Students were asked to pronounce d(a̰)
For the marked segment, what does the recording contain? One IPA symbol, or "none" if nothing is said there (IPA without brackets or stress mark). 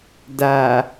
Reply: a